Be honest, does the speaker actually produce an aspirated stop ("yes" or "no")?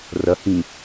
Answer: no